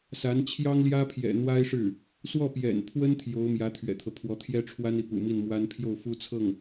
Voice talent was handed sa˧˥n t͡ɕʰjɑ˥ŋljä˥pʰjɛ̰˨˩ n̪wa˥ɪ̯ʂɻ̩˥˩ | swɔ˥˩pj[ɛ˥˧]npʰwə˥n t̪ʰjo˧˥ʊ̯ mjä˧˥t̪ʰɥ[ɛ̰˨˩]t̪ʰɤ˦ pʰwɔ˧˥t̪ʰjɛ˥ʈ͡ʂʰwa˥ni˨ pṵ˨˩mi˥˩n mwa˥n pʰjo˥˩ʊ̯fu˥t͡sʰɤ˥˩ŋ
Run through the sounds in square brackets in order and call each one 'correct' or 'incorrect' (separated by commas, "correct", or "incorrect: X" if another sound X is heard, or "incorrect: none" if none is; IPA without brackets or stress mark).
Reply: incorrect: ɛ̰˨˩, correct